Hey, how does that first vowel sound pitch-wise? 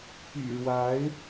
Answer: low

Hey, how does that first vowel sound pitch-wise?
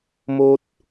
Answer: high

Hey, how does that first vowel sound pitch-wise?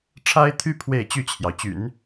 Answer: high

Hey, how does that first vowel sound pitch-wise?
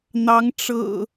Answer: rising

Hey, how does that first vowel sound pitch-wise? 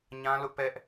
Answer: high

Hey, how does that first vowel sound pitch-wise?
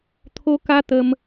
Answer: high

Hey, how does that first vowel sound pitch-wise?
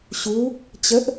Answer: rising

